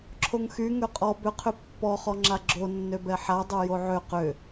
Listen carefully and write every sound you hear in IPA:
ǁʰ o ŋ x y ŋ ø qʼ ɔ b ʏ qʰ ʏ pː ɔ χ ɔ ŋ͡ǁ a ɡ͡ǁ o nː ø b ɛ ħ a dˤ ø j o ʕ ø q ʏ

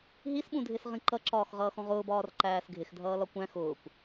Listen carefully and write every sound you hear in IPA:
ɦ i s ɓ ũ dʱ ɪ s ʁ ĩ ǃ ʌ ǁ ɒː x ʁ ʌː x ɔ̃ ʁ ʊː b ɒː r ǃ æː s ɡʱ ɪ x dʱ ʌː l ɒ kʷ æ̃ x ʊː kʷ

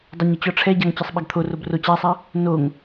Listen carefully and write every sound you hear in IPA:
dˤ ɐ ɲ ə t͡ɕ ɔ ʈ͡ʂʰ ɛ ɟ a ŋ t͡ɕ ɐ sˤ ɓ ɐ ɡ t̪ʰ o r o b r o t͡ɕ a sˤ a | n o ŋ

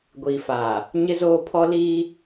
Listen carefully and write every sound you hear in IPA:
ɡʷ iː˨ f aː˨ | ɲ ɪ˦ z oː˦ pʰ ɔ˦ l iː˦

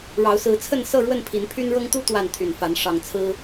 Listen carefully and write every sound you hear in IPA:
ɻ ɑ˨˦ ʊ̯ s ɹ̩˨˦ t͡sʰ ə˥˨ n s ɤ˥˨ ɻ w ə˥˨ n pʰ i˨˦ n pʰ y˦ n ɻ ɤ˦ ŋ t̪ u˦ t̪ w a˥˨ n t̪ʰ y˨˩ n f a˨˦ n ʂ ɑ˨˩ ŋ t͡sʰ ɹ̩˦

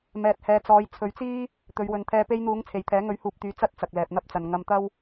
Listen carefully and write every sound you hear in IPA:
m ɛː˨ t̚ h ɛː˨ t͡s ɔː˨˧ j t͡sʰ ɵ˨˧ ɥ t͡s iː˥ | t̪ ɵ˨˧ ɥ w ɵ˨ n t̪ʰ ɛː˧ p e˧ j n̪ uː˨˧ ŋ t͡sʰ e˨ j t̪ʰ ɛː˨˥ ŋ ɵ˨˥ ɥ h uː˨ p̚ t̪ yː˨ t͡s ɐ˥ t̚ t͡s ɐ˨ k̚ l ɛː˨ p̚ n̪ ɐ˥ p̚ t͡s ɐ˨ n ŋ ɐ˧ m t̪ ɐ˥ w

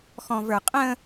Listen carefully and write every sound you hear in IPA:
x ɔ̃ v ə˞ qʼ ə̃

